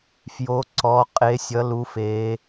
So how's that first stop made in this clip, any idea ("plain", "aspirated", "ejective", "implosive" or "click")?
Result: click